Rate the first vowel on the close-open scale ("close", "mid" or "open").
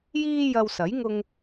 close